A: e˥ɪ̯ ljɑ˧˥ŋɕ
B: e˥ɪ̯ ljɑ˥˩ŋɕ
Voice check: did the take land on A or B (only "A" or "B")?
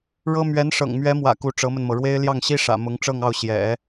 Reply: B